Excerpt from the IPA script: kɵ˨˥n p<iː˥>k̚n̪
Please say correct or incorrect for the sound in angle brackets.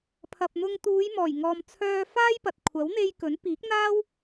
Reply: incorrect: iː˨˥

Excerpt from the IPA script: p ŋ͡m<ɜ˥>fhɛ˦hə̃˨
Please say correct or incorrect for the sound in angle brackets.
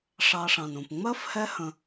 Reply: correct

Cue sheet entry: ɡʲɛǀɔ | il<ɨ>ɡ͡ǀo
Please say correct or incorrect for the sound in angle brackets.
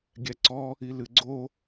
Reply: correct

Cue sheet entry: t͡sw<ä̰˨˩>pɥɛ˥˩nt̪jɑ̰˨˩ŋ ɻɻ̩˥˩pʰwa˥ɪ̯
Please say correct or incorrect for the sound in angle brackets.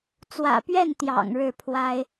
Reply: correct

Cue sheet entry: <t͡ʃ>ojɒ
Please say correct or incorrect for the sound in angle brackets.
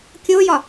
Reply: incorrect: kʲ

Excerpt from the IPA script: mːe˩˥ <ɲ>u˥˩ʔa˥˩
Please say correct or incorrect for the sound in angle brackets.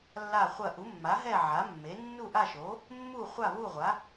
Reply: incorrect: nː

